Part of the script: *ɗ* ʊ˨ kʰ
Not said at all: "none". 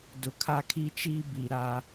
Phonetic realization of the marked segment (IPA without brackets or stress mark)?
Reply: d